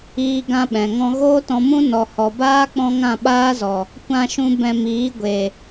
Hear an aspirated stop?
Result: no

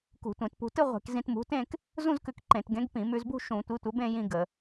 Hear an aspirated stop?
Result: no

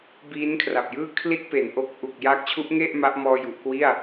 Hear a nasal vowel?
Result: no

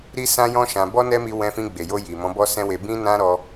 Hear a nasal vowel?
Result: yes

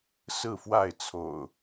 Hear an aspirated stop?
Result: yes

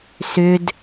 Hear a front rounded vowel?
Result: yes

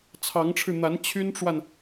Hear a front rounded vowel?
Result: yes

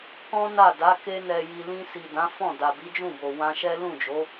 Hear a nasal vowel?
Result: yes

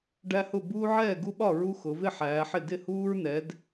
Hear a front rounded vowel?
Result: no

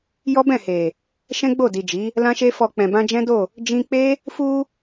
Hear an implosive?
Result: no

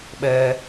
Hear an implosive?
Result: yes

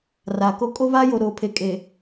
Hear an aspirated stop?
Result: yes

